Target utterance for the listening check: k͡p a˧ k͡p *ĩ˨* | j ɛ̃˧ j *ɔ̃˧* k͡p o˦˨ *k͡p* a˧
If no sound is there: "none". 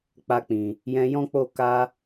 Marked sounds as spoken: ĩ˨, ɔ̃˦, k

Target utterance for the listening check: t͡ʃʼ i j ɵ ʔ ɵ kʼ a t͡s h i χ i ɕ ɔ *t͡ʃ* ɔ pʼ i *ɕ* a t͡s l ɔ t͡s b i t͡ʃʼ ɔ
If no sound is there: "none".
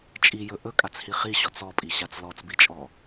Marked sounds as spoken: t͡s, ɕ

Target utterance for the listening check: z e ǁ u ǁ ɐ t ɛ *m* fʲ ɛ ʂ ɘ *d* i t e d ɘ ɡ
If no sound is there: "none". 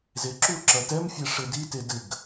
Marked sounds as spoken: m, d

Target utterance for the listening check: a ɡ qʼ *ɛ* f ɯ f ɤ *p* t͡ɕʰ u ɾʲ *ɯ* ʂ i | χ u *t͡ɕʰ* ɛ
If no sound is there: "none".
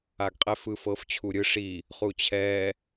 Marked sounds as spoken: ɛ, f, ɯ, t͡ɕʰ

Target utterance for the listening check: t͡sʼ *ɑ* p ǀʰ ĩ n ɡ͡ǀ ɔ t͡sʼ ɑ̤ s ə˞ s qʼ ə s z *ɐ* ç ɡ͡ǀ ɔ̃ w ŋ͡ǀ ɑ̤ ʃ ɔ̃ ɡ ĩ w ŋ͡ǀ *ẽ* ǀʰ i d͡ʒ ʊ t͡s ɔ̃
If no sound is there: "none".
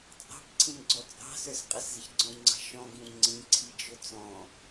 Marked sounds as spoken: ɑ̤, ə, ĩ

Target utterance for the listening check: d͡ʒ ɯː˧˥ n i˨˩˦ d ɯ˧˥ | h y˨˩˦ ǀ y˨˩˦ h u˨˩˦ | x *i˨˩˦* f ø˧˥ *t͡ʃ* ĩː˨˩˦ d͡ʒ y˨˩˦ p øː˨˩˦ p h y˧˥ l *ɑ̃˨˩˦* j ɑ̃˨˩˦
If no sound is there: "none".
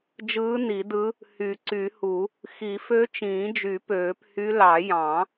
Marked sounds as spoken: i˨˩˦, t͡ʃ, ɑ˨˩˦

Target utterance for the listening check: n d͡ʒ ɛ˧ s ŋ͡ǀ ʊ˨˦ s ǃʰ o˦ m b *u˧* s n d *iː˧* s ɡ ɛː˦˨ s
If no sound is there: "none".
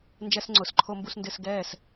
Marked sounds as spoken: u˧, ɪː˧

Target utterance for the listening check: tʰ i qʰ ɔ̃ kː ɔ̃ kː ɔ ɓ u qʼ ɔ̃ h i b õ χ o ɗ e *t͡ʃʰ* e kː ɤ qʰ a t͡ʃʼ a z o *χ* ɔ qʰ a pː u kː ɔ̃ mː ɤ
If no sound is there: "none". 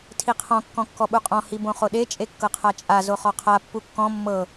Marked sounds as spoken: t͡ʃʼ, χ

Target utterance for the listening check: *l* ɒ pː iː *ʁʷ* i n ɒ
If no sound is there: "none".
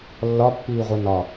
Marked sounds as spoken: lː, ʁʷ

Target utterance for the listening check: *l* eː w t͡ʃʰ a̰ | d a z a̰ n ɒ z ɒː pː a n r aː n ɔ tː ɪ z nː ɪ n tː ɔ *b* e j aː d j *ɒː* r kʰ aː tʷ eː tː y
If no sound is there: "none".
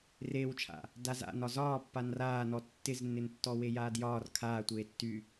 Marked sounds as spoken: r, w, ɒː

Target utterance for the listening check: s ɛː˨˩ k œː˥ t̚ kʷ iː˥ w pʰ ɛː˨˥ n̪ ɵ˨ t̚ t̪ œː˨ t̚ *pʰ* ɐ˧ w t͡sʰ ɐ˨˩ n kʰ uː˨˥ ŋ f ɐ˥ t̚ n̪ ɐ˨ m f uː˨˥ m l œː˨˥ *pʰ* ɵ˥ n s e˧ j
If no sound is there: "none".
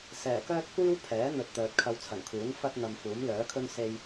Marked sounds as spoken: kʰ, kʰ

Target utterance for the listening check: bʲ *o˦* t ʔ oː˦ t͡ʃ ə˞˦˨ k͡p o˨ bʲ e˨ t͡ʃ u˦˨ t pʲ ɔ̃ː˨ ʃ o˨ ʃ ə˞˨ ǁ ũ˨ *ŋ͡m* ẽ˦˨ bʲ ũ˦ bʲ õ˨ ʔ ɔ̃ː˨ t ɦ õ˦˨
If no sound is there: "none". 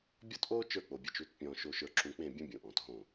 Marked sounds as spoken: ɔ˦, k͡p

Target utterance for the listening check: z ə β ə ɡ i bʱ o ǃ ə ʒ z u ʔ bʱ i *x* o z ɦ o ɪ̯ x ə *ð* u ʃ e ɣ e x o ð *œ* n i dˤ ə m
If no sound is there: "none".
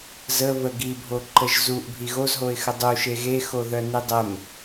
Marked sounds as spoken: ɣ, dˤ, œ

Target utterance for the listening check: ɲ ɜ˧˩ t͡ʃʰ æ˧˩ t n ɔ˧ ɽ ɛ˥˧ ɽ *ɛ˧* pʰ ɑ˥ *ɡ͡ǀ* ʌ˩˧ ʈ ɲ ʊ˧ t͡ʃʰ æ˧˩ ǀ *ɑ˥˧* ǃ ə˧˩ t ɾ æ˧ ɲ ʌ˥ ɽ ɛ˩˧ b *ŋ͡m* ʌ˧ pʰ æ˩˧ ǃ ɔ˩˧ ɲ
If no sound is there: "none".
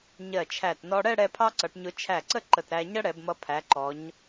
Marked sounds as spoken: ɛ˧, ǀ, ə˥˧, m

